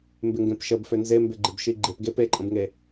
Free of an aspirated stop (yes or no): yes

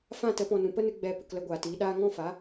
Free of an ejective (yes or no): yes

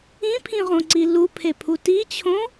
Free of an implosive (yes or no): yes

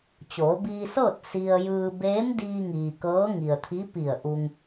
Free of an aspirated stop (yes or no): no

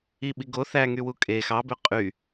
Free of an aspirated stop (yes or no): yes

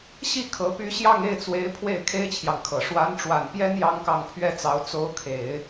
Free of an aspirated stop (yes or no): no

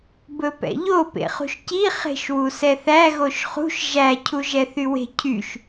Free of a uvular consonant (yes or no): no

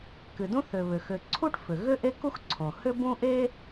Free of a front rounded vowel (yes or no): no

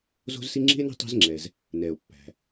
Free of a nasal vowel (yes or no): yes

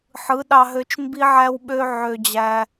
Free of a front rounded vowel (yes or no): no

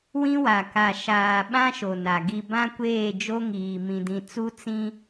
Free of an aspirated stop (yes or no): yes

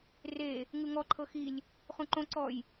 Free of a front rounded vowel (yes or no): yes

